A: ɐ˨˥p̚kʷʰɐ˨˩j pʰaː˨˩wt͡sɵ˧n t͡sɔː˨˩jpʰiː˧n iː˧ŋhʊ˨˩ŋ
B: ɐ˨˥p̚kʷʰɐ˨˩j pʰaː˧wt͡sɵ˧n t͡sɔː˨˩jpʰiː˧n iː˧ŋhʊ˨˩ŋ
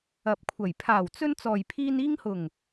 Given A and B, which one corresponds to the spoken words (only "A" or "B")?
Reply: A